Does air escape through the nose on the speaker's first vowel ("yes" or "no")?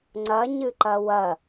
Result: no